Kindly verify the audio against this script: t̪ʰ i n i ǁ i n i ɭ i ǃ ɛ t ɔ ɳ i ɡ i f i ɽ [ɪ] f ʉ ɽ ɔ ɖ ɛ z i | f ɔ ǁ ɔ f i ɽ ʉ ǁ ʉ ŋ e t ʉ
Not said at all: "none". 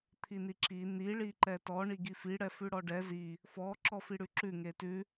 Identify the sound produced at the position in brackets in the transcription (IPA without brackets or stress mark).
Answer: ɛ